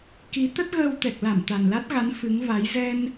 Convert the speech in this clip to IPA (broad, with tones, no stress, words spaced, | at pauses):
ki˨˦ t̪ə˦˥t̚ɣəː˧wt̪ɛ˨˩k̚ la˧˩m t̪a˨˩nla˦˥t̚ɣa˨˦n fɨ˨˦ŋva˨˦j zɛ˧n